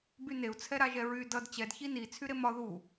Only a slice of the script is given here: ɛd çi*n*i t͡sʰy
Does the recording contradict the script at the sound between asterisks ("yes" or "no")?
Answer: no